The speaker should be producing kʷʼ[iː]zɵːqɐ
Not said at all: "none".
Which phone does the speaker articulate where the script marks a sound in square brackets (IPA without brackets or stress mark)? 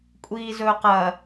iː